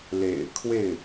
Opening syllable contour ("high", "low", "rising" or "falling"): low